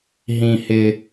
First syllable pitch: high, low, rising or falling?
low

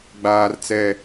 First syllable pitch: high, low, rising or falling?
high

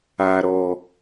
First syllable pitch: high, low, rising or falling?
low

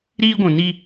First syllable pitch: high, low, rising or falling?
high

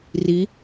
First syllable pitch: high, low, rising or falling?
rising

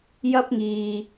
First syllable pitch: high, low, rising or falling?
high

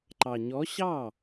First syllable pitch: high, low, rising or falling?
low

